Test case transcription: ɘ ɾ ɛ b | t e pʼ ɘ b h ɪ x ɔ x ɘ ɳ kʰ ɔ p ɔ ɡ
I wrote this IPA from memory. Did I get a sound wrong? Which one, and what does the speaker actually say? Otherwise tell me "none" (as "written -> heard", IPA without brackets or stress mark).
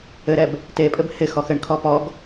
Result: none